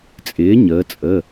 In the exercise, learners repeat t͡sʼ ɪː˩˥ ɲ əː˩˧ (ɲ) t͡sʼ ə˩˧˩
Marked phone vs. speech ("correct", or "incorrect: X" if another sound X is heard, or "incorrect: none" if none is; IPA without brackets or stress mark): incorrect: none